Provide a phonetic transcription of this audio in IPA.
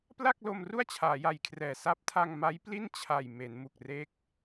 p l a˥˩ k̚ l o˧ m r u˥˩ a̯ t͡ɕʰ aː˩˦ j a˨˩ j kʰ r ɛː˨˩ s a˦˥ p̚ tʰ a˧ ŋ m a˦˥ j p l i˥˩ n t͡ɕʰ a˨˩ j m e˩˦ n m u˨˩ k̚ r e˦˥ k̚

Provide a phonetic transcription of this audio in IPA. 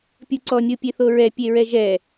pʲ u ǀ ɔ nʲ o pʲ e θ o ɹ ɛ pʲ e ɹ ɛ ʒ ɛ

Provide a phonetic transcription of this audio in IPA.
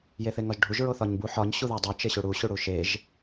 j e θ e ŋ ɒ ʒ ɖʱ u ʒ ɹ o θ ɒ ɲ b u ħ ɒ ɲ ɕ u ð æ dˤ o t͡ʃ e ɕ u ɽ u ɕ u ɽ u ʃ e ʒ

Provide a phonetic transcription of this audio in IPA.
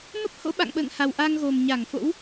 m ə˦˥ p̚ h o̰˧˥ ɓ a̰˧˨ ŋ ɓ ə̰ː˧˨ ŋ h a˨˩ w ʔ a˧ ŋ ɣ o˨˩ m ɲ a˧˩ ŋ f o̰˧˥ w

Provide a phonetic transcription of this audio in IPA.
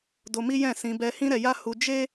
d o˧ m i˦ j ɛ̃˦˨ s ĩ˧ b ɛ˧ h ĩ˦ ɾ ɛ˧ j a˦ h u˧ d͡ʒ e˦

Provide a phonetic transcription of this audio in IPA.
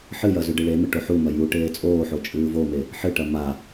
ħ ɨ j ɐ z ʉ ɖ ɨ ɭ e m ɨ ʈ o ħ u m ɐ j u ʈ eː t͡sʼ oː ħ o t͡ʃʼ ɨː v o m e | ħ ɨ ʈ ɐ m a

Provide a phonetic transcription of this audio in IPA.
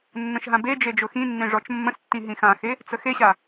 nː ə̃ ʃ ɦ ã b e d͡ʒ e d͡ʒ ʊ x ĩ nː ẽ ʐ ɔ t͡ʃ mː ə̃ s tː ĩ ɦ ĩ x ã x e | t͡s ə x e ɕ a

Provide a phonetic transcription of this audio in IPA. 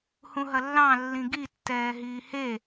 h ũ ɦ ɐ lː ɑ̃ lː ĩ ɡ i tː ɛː ɦ iː h e

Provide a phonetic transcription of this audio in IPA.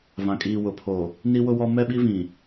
v ã˨ kʼ iː˨ w ʊ˨ pʰ o˨ | n i˦ w ʊ˦ w ɔ˦ m ɛ˦ ɓ i˦ v ĩ˨

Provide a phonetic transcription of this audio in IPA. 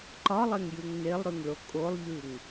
ǃ ɒ lˠ e ŋ j ʉ ŋ n e lˠ ɾ ʉ ŋ ɭ o kʼ o lˠ ʎ ʉ ŋ

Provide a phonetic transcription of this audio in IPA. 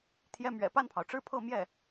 t̪ʰ j ɛ˥ m ɥ ɛ̰˨˩ p a˥˩ n pʰ ɑ˩ ʊ̯ ʈ͡ʂ ɻ̩˥˧ pʰ ɤ˥˧ m j ɛ˥˩

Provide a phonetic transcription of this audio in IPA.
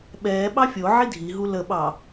ɓ ɛː ɓ ɑ fʲ o ʕ i dʱ i ɦ u l ə ɓ ɑ

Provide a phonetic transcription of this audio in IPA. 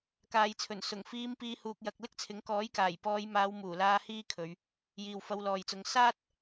k aː˨ j t͡sʰ ɵ˨˩ n s ʊ˨˩ ŋ f iː˧ m p iː˨˧ h uː˨ k̚ j ɐ˨ k̚ l ɪ˥ k̚ t͡sʰ ɪ˨˥ ŋ k ɔː˨˥ j k aː˨˩ j p ɔː˨˧ j m aː˨˧ w m uː˨˩ l aː˧ h iː˥ kʰ ɵ˨˧ ɥ | j iː˨ w f ɐ˧ w l ɔː˨ j t͡s ʊ˧ ŋ s aː˥ t̚

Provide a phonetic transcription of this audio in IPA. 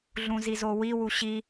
ɮ ũ z i z o w i w u ɕ i

